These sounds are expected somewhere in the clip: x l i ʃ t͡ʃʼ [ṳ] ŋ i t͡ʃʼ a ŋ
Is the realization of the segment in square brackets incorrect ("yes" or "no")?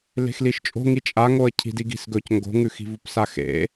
yes